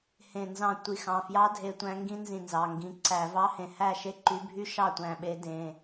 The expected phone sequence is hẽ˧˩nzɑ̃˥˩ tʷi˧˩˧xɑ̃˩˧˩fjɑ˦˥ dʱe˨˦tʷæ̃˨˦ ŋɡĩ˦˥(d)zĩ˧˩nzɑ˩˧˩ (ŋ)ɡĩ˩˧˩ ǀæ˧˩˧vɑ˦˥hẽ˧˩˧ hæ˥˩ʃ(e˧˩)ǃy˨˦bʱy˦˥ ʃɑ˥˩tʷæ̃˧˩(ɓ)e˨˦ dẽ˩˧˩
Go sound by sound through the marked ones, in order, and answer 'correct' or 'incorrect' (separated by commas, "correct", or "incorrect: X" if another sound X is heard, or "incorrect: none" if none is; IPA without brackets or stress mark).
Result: incorrect: n, correct, incorrect: e˥˩, correct